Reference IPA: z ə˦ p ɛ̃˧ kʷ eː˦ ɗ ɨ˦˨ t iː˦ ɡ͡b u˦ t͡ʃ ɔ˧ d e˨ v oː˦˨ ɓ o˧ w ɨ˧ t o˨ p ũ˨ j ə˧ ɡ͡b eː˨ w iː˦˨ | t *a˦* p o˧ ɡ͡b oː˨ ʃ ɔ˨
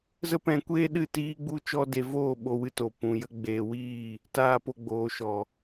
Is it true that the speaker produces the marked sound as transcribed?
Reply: no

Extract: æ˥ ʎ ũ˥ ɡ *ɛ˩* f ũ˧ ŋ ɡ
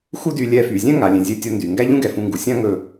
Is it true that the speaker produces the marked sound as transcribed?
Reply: yes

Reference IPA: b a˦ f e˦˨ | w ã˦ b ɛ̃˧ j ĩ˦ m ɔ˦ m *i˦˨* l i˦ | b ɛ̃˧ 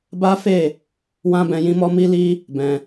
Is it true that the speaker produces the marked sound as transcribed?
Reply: no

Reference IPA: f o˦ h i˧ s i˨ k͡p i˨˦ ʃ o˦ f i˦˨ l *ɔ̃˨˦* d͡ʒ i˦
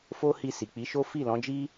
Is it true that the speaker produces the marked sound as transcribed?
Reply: yes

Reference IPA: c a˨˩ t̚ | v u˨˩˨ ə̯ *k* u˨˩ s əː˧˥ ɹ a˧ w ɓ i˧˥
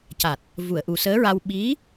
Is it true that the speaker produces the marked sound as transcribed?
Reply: no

